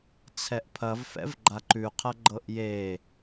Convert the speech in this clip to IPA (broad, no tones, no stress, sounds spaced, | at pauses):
t͡sʰ ɛ ʔ pʰ ɐ v f ɛ̰ v ɡ͡ǃ a ǃ ʉ qʰ ɐ ɡ͡ǃ ɤ ʔ j e